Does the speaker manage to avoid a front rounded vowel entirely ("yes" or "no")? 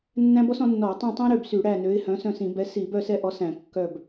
no